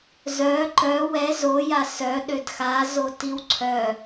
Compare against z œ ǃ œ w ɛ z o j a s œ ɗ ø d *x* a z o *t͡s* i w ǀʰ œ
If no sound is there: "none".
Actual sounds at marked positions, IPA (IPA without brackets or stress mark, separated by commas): x, t